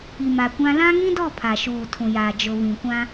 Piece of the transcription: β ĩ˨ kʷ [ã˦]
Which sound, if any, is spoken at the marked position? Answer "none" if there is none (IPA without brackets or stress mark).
ã˦